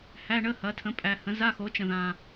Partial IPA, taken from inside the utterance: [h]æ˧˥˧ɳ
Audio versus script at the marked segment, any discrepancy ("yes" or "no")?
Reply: no